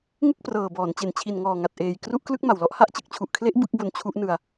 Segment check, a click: absent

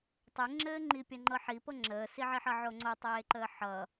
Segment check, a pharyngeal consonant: present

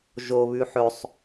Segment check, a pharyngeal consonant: present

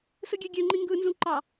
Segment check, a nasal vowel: present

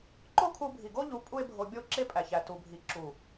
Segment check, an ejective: present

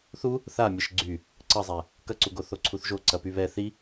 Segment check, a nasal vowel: absent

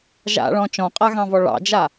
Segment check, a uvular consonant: present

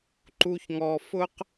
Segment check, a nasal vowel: absent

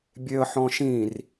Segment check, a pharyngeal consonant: present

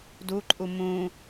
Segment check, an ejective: present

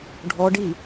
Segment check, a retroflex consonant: present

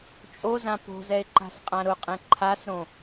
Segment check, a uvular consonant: present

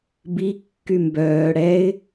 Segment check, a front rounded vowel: present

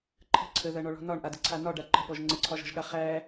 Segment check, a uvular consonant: present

